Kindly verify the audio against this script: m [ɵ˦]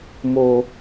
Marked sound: incorrect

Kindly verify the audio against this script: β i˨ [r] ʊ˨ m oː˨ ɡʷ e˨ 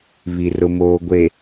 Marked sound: correct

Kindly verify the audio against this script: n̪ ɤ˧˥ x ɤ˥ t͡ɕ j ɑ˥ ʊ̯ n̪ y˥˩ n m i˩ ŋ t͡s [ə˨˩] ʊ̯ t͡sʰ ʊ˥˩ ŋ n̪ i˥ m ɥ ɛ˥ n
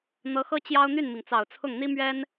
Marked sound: incorrect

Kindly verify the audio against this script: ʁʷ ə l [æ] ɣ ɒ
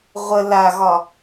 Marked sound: incorrect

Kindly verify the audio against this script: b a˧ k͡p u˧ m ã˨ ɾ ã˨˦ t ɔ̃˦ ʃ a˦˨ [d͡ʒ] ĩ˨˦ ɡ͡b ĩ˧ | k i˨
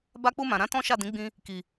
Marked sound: incorrect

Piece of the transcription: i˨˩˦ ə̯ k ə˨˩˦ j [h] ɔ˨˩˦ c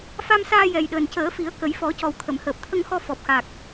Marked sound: incorrect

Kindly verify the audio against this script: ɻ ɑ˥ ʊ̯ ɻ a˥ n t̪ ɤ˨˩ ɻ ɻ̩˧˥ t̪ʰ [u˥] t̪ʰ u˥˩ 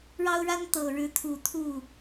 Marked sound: incorrect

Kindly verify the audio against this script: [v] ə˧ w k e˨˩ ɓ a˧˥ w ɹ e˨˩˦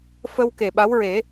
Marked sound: incorrect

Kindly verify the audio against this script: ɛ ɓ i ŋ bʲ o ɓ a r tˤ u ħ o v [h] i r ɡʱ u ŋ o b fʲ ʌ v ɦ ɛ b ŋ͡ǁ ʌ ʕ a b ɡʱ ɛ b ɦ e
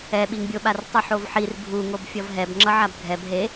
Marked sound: incorrect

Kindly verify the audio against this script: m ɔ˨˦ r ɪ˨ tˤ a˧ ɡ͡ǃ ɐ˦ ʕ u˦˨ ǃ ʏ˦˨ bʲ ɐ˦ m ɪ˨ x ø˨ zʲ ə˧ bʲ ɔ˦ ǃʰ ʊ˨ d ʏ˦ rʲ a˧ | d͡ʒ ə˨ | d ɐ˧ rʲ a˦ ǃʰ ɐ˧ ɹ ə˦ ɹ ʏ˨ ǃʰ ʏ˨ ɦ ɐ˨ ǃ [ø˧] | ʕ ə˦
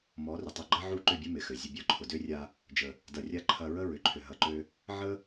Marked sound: correct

